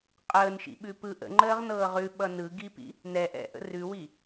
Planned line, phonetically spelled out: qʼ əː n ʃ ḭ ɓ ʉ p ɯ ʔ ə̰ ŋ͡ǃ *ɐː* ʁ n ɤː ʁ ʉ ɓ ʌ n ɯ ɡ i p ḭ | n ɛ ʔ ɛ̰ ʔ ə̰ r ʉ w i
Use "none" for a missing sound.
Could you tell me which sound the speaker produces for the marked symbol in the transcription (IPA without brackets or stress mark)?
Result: əː